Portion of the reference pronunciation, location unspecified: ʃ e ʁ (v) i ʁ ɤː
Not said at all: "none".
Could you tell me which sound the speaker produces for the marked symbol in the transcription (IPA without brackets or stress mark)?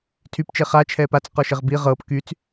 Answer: b